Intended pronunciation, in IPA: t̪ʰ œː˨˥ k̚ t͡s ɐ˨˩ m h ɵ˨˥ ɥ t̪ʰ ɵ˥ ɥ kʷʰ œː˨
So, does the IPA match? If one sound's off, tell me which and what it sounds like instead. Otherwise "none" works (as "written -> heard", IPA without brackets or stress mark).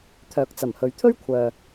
none